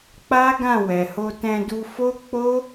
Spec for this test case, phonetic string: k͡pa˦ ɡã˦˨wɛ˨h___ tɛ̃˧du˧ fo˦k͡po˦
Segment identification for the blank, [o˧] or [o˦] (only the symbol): o˧